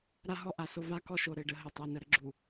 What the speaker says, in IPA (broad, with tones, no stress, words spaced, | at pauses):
ɾa˦ɦɔ˦ʔa˨so˦ va˦kɔ˦ʃo˨ ɾɘ˦ɖə˦ ɦə˨tˤɘ˨ nə˨ɾə˦ɡ͡ǁu˨